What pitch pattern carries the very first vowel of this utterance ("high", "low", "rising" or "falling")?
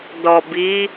low